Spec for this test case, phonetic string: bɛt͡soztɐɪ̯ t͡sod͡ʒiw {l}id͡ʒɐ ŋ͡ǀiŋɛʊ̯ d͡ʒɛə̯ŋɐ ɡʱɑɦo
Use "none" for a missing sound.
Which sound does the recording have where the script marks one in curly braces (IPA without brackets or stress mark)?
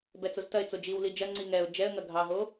l